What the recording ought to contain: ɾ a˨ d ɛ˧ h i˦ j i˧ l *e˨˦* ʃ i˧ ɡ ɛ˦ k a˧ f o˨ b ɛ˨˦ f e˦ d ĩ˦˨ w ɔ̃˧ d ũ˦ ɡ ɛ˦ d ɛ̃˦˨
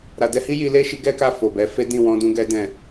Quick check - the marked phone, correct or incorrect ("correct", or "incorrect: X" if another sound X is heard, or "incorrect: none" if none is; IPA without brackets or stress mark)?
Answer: incorrect: e˦